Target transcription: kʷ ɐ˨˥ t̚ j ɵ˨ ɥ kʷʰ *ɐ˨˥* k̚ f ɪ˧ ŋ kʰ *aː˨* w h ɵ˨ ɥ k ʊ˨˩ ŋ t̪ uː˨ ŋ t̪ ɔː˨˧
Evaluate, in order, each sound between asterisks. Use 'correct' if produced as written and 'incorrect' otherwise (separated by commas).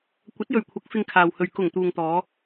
correct, correct